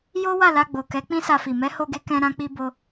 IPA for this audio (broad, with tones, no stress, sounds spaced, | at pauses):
j o˦ w a˦˨ l a˧ ɡ͡b o˨ k ɛ˨˦ k͡p ĩ˦ s a˧ f i˨ m ɛ˨˦ h o˧ ɡ e˧ k ɛ̃˧ ɾ ã˦ k͡p i˦ b o˦